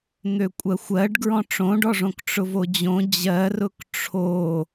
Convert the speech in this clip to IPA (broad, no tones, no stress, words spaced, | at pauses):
n̪økʷʼɜxʷɜɖ ɡɹɔ̃ʈ͡ʂõɖɔʐõk ʈ͡ʂʊvod͡ʑõ d͡ʑɜrʊk ʈ͡ʂʰo